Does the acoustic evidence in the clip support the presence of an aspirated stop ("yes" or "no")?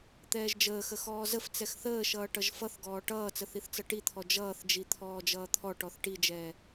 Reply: yes